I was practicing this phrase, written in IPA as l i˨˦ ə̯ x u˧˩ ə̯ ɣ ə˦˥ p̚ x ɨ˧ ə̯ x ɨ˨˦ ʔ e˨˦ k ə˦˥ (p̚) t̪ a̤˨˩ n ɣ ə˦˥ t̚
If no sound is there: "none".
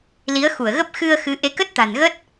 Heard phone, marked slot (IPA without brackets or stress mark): t̚